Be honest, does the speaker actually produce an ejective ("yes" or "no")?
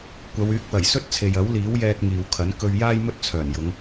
no